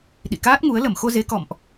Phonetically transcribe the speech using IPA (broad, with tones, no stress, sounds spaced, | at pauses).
ɗ ḭ˧˨ k aː˦˥ t̚ ŋ u˨˦ ə̯ l ə˧˩ m x o˧ z e˨˦ k ɔ̰˧˨ m ʔ